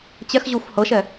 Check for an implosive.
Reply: absent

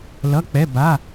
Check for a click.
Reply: absent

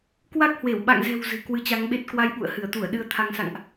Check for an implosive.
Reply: present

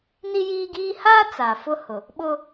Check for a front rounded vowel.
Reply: absent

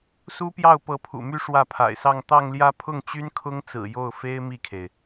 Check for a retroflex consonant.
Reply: present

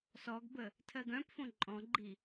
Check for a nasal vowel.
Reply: present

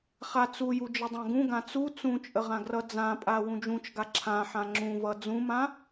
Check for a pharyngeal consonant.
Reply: present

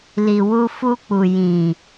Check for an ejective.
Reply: absent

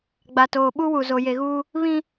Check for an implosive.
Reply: present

